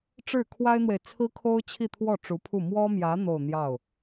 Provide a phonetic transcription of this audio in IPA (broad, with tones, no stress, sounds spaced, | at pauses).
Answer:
ʈ͡ʂ ɻ̩˥˩ kʰ w a˥ ɪ̯ n̪ w e˨ ɪ̯ t͡sʰ ɹ̩˥ kʰ o˥ ʊ̯ t͡ɕʰ i˥˧ t̪ʰ w ɔ˥˩ ʈ͡ʂ u˧˥ pʰ u˥˩ m w ɔ˥ m j ä˧˥ n̪ o˥˧ ʊ̯ n̪ j ɑ˥˩ ʊ̯